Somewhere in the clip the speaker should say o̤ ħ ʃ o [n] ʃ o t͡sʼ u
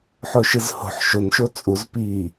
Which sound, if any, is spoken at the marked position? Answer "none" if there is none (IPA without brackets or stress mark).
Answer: n